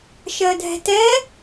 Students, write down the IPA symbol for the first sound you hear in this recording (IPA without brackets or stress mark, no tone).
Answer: ʃ